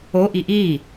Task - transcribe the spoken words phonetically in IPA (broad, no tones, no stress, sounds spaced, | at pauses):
o ʔ i ʔ i